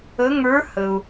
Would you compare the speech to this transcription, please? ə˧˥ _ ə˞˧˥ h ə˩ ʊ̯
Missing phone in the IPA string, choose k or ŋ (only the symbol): ŋ